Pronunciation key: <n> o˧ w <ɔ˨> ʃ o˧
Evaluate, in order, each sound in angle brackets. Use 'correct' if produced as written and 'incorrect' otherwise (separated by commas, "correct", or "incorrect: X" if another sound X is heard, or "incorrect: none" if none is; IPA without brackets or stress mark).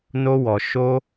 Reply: correct, correct